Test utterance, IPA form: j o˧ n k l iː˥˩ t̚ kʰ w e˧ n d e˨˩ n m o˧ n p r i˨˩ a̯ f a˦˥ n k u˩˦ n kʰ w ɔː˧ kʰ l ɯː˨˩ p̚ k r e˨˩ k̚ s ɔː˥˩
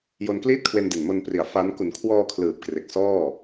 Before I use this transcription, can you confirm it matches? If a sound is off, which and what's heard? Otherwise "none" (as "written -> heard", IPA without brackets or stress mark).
none